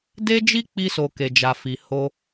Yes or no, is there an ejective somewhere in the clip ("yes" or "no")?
no